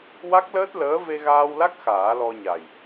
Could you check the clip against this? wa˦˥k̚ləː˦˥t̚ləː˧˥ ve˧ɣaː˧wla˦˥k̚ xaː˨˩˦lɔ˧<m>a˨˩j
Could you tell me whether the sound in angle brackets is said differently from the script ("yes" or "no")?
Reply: yes